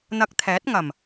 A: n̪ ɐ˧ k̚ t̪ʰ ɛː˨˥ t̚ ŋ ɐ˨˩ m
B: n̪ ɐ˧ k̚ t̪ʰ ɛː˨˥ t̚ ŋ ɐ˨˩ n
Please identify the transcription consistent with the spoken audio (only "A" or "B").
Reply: A